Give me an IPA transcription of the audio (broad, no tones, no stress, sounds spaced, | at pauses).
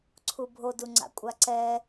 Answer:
ǀʰ u bʱ o d u ŋ͡ǀ a̰ kʷʼ a ǀ ɛ